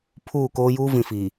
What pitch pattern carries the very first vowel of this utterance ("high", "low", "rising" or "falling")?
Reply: falling